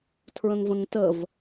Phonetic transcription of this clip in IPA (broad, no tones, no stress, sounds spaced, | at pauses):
tʰ ɹ ə̃ ŋ v ə̃ ŋ t ə v